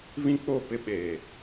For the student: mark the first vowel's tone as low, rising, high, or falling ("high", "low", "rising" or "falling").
high